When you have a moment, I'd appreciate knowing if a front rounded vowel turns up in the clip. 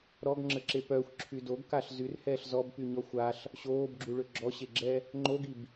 yes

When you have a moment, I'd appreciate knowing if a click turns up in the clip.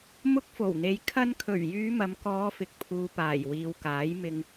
no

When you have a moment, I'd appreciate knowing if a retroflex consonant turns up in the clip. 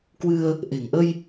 no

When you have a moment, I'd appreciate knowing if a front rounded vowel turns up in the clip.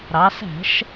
no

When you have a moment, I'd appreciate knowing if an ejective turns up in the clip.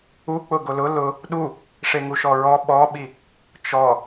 no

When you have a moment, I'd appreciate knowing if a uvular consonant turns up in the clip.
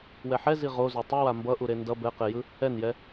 yes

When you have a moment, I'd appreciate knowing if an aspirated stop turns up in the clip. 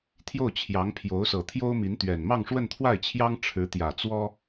yes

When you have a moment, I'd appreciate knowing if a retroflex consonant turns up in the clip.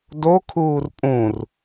no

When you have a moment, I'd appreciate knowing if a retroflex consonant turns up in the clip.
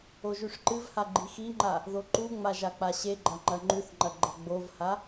yes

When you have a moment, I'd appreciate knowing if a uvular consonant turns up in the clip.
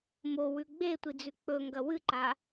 no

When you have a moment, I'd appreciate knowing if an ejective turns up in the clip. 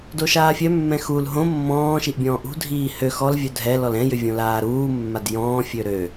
no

